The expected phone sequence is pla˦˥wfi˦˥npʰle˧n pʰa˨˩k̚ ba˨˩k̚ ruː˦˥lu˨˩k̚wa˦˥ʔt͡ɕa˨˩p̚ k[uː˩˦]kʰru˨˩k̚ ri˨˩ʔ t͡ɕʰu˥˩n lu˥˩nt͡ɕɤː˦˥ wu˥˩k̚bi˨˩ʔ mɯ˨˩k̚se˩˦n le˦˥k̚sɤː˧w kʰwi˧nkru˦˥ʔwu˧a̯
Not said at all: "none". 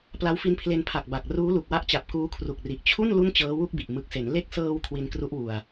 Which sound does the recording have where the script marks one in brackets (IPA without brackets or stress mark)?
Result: uː˦˥